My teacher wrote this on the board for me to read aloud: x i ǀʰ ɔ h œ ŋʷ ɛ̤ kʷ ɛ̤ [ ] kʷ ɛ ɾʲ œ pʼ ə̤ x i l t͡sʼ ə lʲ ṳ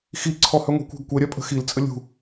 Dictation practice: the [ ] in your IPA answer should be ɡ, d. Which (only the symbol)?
ɡ